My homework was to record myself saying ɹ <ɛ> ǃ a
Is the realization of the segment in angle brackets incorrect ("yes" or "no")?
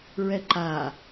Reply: no